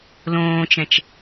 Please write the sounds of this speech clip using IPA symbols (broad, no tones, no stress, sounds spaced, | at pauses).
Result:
l õː t͡ʃ ɛ̃ t͡ʃ